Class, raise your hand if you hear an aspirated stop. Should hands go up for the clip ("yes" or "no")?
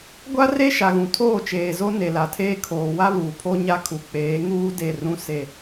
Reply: yes